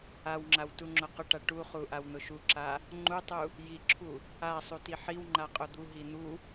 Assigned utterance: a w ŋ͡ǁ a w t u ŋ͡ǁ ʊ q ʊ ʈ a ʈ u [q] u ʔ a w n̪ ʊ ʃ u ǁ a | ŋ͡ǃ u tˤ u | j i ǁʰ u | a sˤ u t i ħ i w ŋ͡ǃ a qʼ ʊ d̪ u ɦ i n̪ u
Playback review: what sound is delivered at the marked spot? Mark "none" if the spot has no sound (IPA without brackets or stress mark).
χ